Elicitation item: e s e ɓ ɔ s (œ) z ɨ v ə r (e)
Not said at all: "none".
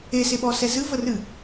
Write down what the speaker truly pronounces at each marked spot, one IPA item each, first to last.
ɛ, ɨ

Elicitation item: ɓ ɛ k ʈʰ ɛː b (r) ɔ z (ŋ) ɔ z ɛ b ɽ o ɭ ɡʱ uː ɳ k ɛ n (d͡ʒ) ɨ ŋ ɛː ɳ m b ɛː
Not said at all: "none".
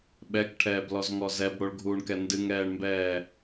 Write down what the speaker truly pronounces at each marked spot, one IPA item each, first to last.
l, ŋ, d

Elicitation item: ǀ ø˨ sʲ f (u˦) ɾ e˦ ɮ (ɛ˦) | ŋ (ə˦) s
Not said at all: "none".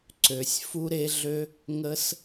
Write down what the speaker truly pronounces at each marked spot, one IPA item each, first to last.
u˦, ø˦, ə˦

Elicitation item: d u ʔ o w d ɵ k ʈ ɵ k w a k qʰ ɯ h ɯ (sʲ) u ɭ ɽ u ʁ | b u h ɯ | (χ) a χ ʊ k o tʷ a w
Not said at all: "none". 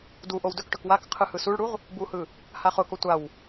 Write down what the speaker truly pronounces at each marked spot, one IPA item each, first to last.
s, h

